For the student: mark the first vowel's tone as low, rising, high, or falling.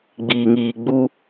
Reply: low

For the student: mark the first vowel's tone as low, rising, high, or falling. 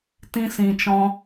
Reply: high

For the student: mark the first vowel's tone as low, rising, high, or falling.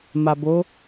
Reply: low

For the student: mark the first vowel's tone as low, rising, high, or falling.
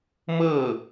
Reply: falling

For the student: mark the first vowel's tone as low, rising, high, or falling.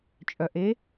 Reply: low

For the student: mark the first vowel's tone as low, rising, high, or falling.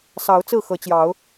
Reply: rising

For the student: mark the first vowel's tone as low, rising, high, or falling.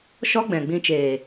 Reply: high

